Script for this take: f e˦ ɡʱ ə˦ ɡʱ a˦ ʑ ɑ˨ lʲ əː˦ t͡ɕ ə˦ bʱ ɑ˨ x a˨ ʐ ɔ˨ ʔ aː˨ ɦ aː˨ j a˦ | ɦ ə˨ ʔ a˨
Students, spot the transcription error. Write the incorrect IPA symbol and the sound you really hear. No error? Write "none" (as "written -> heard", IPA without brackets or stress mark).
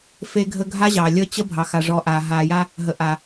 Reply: none